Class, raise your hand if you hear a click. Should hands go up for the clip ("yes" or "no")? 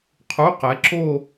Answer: yes